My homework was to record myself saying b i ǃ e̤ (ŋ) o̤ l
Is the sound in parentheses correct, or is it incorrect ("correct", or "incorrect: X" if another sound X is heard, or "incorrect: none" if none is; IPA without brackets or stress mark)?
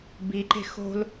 incorrect: x